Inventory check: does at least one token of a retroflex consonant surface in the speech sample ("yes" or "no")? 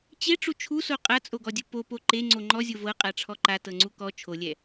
yes